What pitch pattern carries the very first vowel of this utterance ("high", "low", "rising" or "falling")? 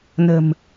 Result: low